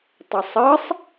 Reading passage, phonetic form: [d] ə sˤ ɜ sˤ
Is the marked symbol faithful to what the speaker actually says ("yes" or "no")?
no